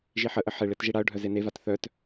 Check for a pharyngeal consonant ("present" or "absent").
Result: present